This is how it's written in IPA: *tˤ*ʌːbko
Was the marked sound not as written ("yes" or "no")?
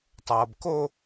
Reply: no